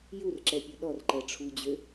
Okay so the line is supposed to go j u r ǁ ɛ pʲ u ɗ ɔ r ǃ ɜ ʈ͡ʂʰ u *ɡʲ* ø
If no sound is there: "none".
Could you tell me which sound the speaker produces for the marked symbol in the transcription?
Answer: d͡ʑ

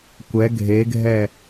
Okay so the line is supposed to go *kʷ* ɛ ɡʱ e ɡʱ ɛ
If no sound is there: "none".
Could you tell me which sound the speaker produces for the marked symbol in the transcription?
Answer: kʷ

